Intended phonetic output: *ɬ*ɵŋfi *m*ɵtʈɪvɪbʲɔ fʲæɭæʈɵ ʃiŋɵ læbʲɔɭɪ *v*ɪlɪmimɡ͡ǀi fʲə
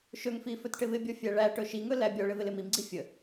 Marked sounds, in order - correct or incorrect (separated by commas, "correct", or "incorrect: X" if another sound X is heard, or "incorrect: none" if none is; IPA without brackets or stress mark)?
incorrect: ʃ, incorrect: f, correct